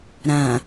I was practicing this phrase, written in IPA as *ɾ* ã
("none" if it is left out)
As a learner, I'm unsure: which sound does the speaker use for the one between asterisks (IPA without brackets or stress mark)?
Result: ɾ